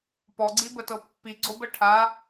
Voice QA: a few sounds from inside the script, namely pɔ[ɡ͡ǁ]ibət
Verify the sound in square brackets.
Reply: incorrect: ɡ͡ǀ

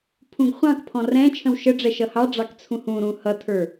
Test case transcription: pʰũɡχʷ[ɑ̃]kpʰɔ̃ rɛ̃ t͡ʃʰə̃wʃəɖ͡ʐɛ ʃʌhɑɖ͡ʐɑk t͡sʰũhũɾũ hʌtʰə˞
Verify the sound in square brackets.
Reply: correct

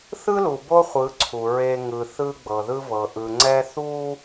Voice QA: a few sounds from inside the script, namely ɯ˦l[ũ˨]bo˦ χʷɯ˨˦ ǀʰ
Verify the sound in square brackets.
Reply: incorrect: u˨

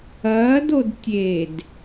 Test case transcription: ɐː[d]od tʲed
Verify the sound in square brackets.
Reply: correct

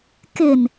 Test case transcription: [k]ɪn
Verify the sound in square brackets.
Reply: correct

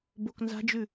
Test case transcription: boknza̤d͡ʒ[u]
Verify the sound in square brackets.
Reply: incorrect: ʉ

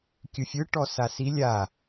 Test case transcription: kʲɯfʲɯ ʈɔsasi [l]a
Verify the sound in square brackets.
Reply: incorrect: lʲ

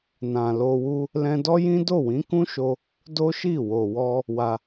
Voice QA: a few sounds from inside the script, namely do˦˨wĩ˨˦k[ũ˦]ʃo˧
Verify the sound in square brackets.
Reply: correct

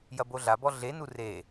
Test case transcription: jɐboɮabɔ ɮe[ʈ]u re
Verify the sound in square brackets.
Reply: incorrect: n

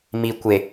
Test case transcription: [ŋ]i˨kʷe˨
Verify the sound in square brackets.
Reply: incorrect: m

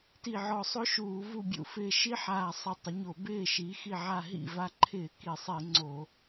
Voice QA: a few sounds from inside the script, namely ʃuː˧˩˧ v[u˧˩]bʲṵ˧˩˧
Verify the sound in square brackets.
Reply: correct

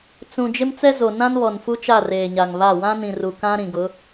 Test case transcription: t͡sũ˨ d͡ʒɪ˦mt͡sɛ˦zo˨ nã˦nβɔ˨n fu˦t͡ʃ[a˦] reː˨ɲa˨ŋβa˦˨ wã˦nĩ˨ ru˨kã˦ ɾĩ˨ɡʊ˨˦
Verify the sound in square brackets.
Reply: incorrect: a˦˨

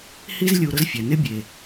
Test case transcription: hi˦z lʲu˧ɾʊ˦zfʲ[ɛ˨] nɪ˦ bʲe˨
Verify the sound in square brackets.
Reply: correct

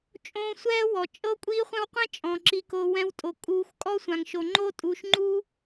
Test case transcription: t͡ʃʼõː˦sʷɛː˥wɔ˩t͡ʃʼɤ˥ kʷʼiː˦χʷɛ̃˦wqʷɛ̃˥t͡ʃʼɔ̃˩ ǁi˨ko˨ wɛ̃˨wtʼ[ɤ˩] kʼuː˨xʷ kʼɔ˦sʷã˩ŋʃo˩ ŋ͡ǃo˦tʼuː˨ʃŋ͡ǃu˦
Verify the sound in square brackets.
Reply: incorrect: o˩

